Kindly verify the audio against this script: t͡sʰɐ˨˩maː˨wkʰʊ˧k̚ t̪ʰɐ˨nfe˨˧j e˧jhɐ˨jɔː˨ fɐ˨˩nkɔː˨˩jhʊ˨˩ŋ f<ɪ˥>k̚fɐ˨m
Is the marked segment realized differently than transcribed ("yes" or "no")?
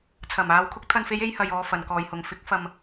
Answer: yes